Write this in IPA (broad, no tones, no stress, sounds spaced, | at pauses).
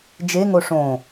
d͡ʒ e ŋ o ʂ õ